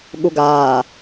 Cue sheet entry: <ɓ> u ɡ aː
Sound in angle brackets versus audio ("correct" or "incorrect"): incorrect